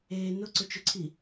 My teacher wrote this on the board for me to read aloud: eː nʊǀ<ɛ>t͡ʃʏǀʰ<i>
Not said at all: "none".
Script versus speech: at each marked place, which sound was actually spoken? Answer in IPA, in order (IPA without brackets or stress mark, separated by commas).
ʏ, i